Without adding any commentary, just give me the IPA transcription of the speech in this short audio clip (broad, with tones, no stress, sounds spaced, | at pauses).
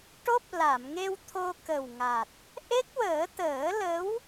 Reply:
ʈ o˦˥ p̚ l a˨˩˨ m ŋ e˧ w t̪ʰ o˧ k ə˨˩ w ŋ a˨˩ t̚ | ʔ e˦˥ k̚ w əː˨˩˦ t̪ əː˨˩˦ l ə˧˥ w